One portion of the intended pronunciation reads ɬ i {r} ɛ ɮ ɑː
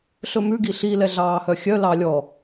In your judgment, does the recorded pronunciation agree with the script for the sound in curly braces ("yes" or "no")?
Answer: no